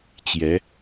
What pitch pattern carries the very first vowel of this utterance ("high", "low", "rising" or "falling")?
rising